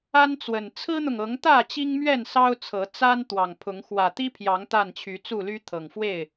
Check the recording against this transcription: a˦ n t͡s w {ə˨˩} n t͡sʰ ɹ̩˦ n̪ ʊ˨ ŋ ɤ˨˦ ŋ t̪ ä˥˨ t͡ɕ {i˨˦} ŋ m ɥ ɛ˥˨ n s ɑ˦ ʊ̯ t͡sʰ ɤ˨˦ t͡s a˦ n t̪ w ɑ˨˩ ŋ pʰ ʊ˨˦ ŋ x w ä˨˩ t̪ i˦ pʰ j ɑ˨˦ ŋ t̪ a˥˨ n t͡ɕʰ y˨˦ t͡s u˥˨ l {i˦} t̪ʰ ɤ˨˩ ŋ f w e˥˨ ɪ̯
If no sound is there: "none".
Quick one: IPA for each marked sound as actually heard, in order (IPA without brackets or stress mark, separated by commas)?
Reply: ə˨˩, i˦, y˦